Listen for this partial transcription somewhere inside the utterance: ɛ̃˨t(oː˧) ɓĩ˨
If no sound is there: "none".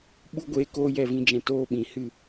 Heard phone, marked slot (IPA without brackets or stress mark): oː˧